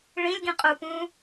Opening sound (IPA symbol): ɭ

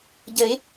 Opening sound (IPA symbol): ɟ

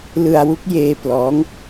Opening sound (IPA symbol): l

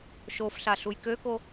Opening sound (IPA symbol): ʃ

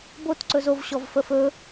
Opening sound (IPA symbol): b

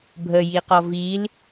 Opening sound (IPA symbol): bʱ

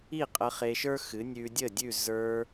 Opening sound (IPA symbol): i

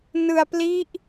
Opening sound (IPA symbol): n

